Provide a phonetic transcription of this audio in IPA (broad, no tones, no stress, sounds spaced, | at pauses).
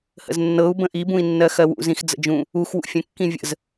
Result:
h ə̰ z nː ɤ u̯ b ə̃ ʔ i b ũ i̯ nː ɜ x ɜ w ṵ z ĩ x d͡z ə̰ d͡ʒ ũ | u x w ṵ fʲ ə̃ kː ĩ vʲ ə̰ z